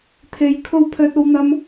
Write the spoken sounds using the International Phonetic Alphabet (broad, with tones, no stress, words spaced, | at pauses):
t̪ʰe˨˥jkʰo˧w pʰœː˨t̚o˨wn̪ɐ˨m